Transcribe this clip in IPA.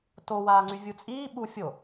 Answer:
t o w aː ŋ͡ǀ y vʲ u t͡sʼ iː ɓ u fʲ o

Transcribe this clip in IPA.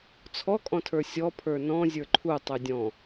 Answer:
t͡sʰ ɔ kʼ ɔ̃ tʰ ə˞ sʲ ɔ pʰ ə˞ n ɔ̃ zʲ ə˞ ǃʰ u tˤ y dʲ ɔ̃

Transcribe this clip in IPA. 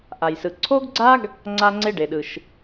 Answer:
ʔ a˩ j s ɯ˩ ǀʰ o˥ ɡ ɡ͡ǀ a˥ ɡ | ŋ͡ǀ a˧ ŋ͡ǀ e˧ ɖ e˩ ɗ ɯ˩ ʃ

